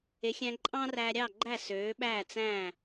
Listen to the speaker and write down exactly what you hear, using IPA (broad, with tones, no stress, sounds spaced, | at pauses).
e˩˥ xʲ æ̃˧ ǃʼ ɑ̃ː˥ r æː˧ ɾʲ ɑ˥˩ ɡ͡ǃ æ˥˩ s øː˩˥ ɓ æː˥˩ t͡s æ̃˥˩